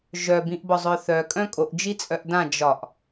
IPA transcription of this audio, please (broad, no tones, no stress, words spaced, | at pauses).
ʒœbĩʔbɒzˤœ θœkʼœ̃ kʼoʔd͡ʒit͡sʼœʔ dã d͡ʒɒʔ